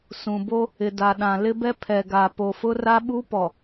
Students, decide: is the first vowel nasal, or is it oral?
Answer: nasal